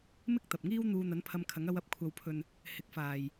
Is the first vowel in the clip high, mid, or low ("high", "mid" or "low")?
high